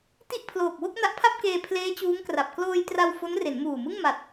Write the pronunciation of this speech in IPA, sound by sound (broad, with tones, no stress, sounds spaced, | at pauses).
t i˥˩ ʔ pʰ l oː˨˩ k̚ w o˥˩ k̚ n a˦˥ ʔ pʰ a˥˩ p̚ k eː˧ pʰ l eː˦˥ t͡ɕ uː˦˥ ŋ k r a˨˩ p̚ k l oː˧ j t r a˧ w f o˦˥ n r e˩˦ n m uː˨˩ m ɯ˥˩ ŋ m a˨˩ t̚